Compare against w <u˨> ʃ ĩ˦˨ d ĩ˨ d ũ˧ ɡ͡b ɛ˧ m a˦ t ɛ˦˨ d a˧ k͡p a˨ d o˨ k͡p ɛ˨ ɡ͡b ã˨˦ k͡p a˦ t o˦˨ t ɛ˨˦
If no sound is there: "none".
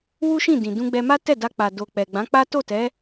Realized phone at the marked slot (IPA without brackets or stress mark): u˦